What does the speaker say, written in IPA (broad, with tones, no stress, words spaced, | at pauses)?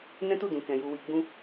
nɛ̃˦tu˦˨dũ˨kɛ̃˨ ju˨wi˨ɡ͡bũ˧